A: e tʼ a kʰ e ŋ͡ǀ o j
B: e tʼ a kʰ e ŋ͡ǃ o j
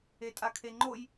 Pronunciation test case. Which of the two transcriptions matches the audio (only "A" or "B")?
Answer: B